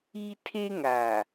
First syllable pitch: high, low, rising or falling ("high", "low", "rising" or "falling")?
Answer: high